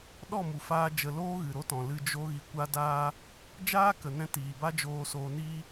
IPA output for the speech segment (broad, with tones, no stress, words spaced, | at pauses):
ɗɔ˦˨mu˨ faː˦d͡ʒə˧ loː˦ɣɨ˨ɾo˦tɔ̃˨ lɨ˧d͡ʒo˦ ɣi˧kʷa˦daː˦ | d͡ʒaː˦kə˨nɛ̃˧ tiː˨ba˦d͡ʒoː˧ soː˧niː˦